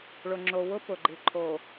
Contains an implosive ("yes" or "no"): no